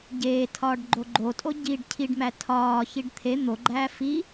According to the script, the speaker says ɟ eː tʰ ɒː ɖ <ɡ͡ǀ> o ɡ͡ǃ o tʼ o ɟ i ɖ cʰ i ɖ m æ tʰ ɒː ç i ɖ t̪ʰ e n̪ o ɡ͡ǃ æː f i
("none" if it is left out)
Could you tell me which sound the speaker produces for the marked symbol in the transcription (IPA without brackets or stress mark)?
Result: ɡ͡ǃ